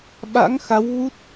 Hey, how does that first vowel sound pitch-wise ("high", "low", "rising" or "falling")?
rising